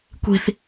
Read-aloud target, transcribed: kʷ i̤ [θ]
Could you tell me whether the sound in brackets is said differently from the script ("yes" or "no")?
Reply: no